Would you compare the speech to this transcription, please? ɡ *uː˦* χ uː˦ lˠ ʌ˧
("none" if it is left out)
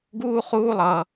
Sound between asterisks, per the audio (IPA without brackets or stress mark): uː˦